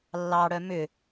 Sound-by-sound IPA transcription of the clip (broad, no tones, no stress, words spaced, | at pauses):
lːɑɽœ mʏ